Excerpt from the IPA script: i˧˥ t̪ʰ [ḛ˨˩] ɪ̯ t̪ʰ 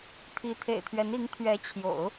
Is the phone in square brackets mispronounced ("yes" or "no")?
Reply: no